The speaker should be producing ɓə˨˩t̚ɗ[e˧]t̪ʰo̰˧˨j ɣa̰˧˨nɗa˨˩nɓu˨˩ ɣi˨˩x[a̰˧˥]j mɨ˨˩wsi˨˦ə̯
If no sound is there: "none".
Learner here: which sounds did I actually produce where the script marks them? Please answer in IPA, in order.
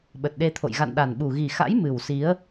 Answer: e˧, a̰˧˥

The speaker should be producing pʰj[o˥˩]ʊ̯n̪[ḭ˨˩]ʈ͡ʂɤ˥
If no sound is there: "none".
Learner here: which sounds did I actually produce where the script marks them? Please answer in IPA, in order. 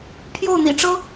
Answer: o˥˩, ḭ˨˩

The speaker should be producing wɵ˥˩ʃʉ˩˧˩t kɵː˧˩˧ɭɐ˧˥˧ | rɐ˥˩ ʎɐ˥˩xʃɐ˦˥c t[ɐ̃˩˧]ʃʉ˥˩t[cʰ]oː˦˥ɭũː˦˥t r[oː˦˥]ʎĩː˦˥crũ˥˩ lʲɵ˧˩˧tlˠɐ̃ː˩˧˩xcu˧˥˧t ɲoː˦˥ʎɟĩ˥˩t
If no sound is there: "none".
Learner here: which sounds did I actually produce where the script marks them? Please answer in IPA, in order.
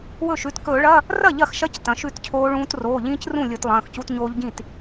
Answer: ɐ̃˩˧, cʰ, oː˩˧˩

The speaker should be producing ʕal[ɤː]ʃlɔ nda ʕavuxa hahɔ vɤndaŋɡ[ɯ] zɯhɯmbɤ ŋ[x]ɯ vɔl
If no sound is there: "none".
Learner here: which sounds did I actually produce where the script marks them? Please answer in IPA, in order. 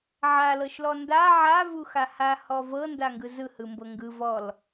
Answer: ɤ, ɯ, ɡ

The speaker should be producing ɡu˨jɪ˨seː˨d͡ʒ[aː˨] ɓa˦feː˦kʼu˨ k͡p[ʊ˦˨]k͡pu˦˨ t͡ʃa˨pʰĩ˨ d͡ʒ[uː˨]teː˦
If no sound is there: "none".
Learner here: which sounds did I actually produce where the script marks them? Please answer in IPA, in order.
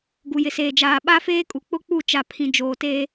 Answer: aː˨, ʊ˦˨, oː˨

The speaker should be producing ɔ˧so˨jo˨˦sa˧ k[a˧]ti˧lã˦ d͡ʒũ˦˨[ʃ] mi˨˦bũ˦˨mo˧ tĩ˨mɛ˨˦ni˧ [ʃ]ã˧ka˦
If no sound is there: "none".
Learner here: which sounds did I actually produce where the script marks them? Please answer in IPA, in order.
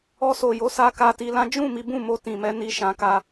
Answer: a˧, none, ʃ

